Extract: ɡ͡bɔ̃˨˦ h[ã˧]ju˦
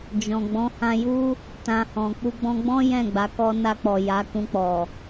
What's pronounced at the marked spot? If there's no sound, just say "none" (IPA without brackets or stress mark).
ã˧